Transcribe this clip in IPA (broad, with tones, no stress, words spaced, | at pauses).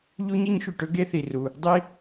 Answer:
ʎu˥ɲi˥ɲʃy˩ʈɵ˥ ɡe˥θi˩ru˩ | dˤi˥